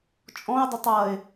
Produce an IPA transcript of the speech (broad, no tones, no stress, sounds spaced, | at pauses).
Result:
t͡ʃʼ ɔ̃ ɪ̯ dˤ ə tˤ ʌ ɪ̯